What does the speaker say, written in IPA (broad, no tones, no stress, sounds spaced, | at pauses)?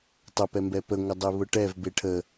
tˤ ə p ɛ m b ɛ p ə ŋʷ ə dˤ e β ʊ ʈ ɛ v b e ʈʰ ə